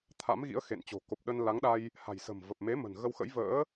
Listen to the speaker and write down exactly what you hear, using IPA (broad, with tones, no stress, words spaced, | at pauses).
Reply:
t̪ʰa̰˧˥mɣḭ˧˥ə̯xḛ˧˨nt͡ɕo̤˨˩ ko˨˩p̚ɗə˧nla˨˦ŋɗa˧j | ha̤˨˩jsə̤˨˩mvə˨˩p̚me˨˦ mə̤˨˩nɣə˧wxə̰˧˥j və̰ː˧˥